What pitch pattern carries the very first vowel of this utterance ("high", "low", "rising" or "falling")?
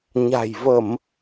low